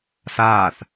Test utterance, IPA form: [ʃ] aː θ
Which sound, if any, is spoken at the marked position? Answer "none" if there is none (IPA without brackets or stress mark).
s